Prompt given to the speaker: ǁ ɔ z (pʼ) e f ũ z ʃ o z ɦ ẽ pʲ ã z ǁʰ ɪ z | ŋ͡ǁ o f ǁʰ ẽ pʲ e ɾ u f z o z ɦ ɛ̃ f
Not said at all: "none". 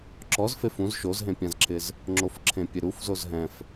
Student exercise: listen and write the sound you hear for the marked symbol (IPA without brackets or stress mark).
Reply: f